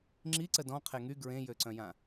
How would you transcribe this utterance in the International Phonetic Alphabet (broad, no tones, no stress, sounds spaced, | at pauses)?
ŋ͡ǁ i ǀ ə d ɔ̃ qʰ e ŋ y ɡ ɹ ẽ j ø ǀ œ̃ j ã